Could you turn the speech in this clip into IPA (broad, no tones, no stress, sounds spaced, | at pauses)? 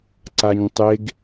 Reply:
ǀ a ɲ tˤ e ɡ